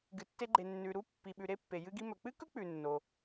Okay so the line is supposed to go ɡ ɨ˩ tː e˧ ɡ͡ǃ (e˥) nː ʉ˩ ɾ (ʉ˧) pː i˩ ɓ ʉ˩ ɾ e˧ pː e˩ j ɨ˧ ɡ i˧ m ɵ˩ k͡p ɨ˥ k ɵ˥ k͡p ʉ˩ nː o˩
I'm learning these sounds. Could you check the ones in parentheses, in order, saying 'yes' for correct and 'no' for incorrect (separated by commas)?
no, no